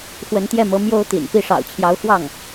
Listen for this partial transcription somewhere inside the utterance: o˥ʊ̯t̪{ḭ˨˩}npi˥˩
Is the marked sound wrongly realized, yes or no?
no